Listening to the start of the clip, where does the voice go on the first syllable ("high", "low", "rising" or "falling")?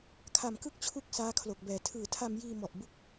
low